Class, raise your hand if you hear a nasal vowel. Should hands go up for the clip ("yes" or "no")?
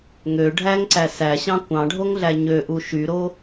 yes